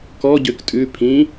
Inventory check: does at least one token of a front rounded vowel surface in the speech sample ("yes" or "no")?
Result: yes